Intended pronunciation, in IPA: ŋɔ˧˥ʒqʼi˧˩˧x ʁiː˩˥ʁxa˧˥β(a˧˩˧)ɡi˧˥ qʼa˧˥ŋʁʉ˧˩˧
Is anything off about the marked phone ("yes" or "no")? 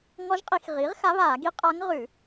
yes